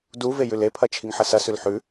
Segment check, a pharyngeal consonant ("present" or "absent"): present